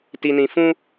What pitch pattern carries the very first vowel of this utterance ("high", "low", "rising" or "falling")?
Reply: low